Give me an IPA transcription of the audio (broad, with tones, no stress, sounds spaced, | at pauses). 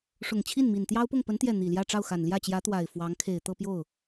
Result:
ʂ ʊ˨˩ ŋ t͡ɕʰ i˥˩ n m i˨˩ n t̪ j ɑ˥ ʊ̯ p ʊ˥˩ ŋ p ə˧˥ n t̪ j ɛ˥˩ n̪ i˨˩ l j ä˥˧ ʈ͡ʂ ɑ˥˩ ʊ̯ x a˨˩ n l j ä˥˩ t͡ɕ j ä˧˥ t̪ w a˨˩ ɪ̯ f w ɑ˧˥ ŋ kʰ e˨˩ ɪ̯ t̪ ɤ˥˧ p j o˥˩ ʊ̯